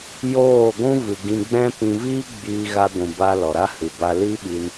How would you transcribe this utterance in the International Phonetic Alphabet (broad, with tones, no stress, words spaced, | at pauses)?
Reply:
joː˦˨ɡʷũ˦vɨ˨ ɡĩ˧ɡ͡bɛ̃˦ pĩ˧viː˦ ɡ͡biː˧ɣa˧ɡʷũ˨ba˧ lɔ˨ɾa˦hɨ˨ ba˧li˦ɓi˧n